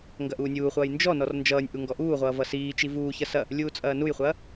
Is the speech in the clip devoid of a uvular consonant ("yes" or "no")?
no